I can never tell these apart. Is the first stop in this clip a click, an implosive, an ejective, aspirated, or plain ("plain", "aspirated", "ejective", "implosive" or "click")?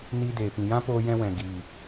plain